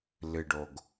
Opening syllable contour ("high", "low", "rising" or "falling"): low